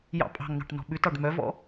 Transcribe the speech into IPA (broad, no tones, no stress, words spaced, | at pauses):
jɑ̰ pʼɑ̤ŋnɑ̤ʈ nɔ̤ɓʉtɑɖ mœvɔ̰